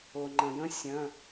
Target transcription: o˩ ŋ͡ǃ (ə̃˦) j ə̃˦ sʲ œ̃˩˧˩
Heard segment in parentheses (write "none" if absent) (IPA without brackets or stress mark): ə̃˩